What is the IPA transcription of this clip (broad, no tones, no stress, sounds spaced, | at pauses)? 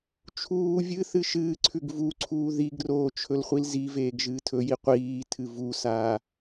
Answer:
t͡ʃʰ uː vʲ ɨ θ ɨ ʃ ɨː ǀʰ ʉ ɡ v u ǀʰ uː ð i ɡ r oː t͡ʃʰ ɵ l χʷ i l z i v eː ɡ ʒ ɨː tʰ ɵ j i qʷ iː tʰ ɨ v u s aː